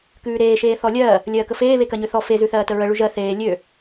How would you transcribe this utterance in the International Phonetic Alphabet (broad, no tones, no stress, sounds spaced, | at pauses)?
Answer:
k ʉː ɾ eː ʃ eː θ ɔ lʲ ɜː | lʲ ɜː k ə f eː β e k ɜ ɲ ø θ ɔ f e z ʉ θ ɜː t ə ɹ ə ɭ ʉ ʒ ɜ θ eː lʲ ø